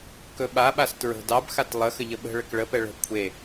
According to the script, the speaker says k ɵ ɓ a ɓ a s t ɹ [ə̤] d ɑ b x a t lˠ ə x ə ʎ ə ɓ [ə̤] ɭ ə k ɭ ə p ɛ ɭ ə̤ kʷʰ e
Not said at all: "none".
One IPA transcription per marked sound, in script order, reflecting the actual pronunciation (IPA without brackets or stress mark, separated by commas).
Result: ə̤, ə̤